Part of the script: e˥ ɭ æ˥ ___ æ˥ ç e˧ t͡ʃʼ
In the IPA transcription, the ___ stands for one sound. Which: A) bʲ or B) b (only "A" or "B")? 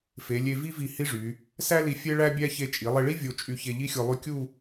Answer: A